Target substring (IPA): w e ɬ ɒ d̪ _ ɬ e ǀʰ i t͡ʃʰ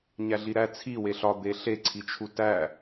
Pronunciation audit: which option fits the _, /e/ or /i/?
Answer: e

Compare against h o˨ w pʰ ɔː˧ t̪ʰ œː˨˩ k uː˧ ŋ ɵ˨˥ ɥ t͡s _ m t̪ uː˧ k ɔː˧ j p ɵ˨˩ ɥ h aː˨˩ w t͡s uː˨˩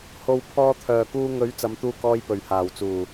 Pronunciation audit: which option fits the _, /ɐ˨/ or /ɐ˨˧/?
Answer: ɐ˨˧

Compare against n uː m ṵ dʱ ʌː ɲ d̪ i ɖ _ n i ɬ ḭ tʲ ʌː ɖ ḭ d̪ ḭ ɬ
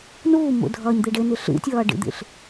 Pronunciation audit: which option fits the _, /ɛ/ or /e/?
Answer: e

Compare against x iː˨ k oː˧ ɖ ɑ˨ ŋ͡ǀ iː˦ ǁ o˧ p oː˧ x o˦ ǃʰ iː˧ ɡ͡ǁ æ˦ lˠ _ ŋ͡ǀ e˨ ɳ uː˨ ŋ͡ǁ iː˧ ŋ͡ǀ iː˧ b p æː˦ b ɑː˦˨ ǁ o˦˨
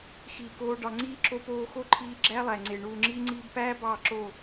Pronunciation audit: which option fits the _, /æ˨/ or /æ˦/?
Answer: æ˨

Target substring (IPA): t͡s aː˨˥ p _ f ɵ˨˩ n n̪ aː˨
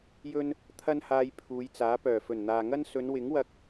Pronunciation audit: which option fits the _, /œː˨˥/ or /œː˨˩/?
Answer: œː˨˩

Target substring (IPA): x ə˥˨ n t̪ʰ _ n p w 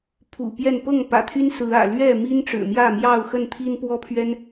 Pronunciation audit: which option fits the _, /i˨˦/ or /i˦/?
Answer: i˦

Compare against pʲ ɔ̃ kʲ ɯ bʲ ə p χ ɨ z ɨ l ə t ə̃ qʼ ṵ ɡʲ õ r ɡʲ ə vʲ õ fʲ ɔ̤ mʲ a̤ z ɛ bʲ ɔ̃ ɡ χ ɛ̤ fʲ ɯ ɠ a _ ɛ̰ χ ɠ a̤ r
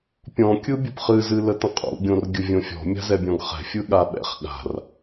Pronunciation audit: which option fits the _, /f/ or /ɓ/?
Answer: ɓ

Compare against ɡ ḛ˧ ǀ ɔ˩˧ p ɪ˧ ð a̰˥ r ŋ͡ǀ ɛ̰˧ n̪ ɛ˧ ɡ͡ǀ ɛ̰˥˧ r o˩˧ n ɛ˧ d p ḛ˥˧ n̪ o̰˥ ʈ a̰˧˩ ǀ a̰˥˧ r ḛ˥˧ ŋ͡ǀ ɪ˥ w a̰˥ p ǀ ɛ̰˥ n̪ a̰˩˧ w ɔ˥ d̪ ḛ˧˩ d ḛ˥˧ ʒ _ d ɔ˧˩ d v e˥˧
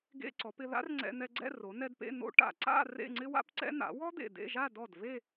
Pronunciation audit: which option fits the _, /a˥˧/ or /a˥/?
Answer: a˥˧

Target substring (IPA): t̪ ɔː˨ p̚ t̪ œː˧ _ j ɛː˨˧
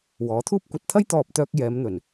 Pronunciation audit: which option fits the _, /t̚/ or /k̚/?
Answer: k̚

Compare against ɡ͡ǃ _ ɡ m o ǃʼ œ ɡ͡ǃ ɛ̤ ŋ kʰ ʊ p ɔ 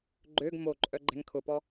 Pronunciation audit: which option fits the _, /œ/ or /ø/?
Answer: ø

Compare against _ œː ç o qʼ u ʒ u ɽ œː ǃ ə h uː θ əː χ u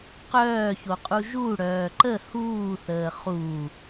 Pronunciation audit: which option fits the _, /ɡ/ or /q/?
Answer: q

